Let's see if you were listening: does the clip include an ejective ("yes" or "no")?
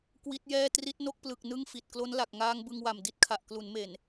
no